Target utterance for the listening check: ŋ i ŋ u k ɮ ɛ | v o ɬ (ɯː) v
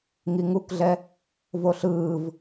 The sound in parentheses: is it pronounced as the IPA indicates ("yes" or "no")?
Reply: yes